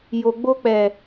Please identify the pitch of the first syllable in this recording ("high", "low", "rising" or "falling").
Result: low